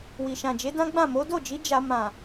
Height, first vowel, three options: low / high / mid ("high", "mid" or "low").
high